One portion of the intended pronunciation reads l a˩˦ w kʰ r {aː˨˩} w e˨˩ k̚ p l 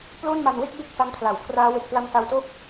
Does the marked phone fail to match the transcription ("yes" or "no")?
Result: yes